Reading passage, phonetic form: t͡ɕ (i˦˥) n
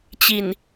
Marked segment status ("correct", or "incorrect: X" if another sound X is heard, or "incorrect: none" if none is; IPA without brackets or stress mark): incorrect: i˨˩